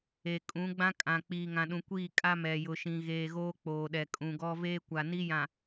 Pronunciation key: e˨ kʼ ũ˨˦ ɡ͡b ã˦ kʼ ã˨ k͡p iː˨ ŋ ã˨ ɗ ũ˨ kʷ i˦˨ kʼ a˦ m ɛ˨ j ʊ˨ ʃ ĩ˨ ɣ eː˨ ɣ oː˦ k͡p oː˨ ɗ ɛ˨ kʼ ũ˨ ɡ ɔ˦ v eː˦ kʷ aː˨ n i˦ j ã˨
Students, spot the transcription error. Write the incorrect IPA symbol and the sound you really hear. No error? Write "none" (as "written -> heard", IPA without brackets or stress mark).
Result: aː˨ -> a˨